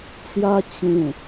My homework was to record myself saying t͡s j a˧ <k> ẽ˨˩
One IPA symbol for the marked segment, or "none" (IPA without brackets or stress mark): t͡ɕ